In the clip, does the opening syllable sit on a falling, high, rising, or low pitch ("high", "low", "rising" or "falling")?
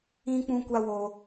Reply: high